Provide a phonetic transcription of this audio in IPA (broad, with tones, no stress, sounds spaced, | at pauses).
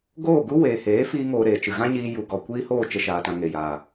ɡ oː˦˨ ɡ u˦ w eː˨ h eː˨˦ f iː˦ ŋ oː˧ ɾ eː˨ t͡ʃ ɨ˨ ɣ ã˦ ɲ iː˧ j u˨ ɡ ɔ˨ kʷ iː˦ h oː˦˨ t͡ʃ ə˦ ʃ aː˧ t ã˧ ŋ e˨ j a˨